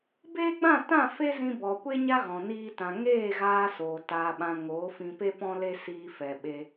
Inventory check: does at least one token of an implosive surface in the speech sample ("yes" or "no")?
yes